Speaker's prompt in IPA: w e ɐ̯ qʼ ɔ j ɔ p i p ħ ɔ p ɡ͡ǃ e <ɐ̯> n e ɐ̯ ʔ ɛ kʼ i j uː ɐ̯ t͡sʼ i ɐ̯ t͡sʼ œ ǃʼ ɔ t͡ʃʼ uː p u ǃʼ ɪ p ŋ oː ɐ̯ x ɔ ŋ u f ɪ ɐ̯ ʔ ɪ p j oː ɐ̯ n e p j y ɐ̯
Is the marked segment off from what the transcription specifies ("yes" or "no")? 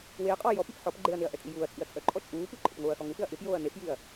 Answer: no